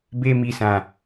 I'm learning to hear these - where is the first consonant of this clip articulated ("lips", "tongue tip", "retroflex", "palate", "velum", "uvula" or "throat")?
lips